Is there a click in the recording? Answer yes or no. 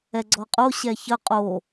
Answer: yes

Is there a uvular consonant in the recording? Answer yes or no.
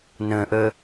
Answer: no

